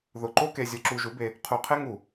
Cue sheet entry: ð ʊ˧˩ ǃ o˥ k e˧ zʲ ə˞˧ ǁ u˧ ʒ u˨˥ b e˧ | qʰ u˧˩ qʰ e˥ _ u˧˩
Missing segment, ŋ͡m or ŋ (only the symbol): ŋ